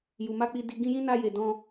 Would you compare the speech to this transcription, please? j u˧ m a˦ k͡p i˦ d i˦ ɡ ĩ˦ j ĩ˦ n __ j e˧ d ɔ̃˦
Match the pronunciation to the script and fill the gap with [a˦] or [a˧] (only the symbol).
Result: a˦